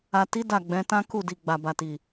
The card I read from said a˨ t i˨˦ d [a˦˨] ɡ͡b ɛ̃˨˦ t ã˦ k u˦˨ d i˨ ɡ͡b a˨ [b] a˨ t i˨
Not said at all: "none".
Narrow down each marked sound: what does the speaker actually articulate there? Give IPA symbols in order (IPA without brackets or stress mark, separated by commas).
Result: a˦˨, b